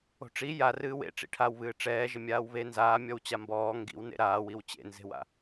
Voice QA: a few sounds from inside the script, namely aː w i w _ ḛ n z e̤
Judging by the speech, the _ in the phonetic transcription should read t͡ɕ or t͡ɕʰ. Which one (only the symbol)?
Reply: t͡ɕ